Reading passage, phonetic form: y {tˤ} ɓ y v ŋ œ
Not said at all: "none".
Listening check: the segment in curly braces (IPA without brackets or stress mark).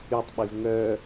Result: tˤ